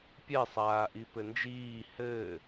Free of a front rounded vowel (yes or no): yes